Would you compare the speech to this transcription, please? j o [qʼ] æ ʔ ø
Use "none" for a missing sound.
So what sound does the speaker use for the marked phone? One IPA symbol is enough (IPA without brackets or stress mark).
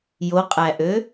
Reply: qʼ